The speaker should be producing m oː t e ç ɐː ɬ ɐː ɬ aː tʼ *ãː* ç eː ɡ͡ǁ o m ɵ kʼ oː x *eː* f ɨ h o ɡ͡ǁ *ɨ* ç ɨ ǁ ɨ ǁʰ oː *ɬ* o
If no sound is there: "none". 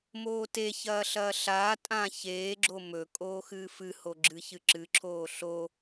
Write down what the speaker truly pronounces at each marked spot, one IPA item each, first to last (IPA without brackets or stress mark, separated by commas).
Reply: ãː, ɨː, ɨ, ɬ